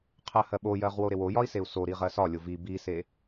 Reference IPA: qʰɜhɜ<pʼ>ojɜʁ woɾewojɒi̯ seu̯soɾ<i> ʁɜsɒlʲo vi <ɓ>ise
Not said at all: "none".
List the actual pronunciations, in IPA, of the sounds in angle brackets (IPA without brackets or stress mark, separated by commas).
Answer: ɓ, i, b